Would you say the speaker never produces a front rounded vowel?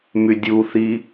no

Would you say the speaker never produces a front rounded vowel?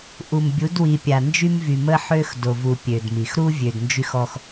no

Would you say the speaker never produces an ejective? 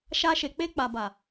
yes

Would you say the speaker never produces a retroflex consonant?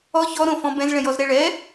no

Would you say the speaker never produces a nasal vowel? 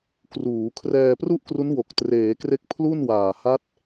yes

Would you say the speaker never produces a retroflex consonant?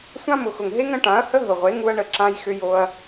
no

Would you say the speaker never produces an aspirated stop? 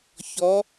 yes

